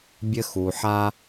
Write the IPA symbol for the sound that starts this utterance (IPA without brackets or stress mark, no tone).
bʲ